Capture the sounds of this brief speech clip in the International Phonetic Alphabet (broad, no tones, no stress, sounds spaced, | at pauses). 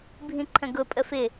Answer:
bʱ ĩ ǃʰ ə̃ ɡ ʊ pʼ ə f ɪ